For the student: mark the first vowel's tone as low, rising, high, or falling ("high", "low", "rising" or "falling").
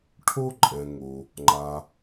high